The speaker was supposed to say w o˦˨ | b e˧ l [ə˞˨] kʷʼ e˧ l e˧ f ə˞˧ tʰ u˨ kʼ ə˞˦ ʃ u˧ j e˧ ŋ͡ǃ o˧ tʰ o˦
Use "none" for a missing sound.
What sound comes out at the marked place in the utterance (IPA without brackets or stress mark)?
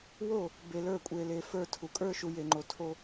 ə˞˦˨